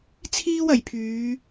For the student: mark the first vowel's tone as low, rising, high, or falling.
high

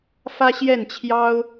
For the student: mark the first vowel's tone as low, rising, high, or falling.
high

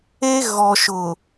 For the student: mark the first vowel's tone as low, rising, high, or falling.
high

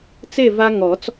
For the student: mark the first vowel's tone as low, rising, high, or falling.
falling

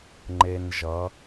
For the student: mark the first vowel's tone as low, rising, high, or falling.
high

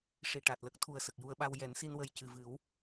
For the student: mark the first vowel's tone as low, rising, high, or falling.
low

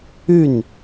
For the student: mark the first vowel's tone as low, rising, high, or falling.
falling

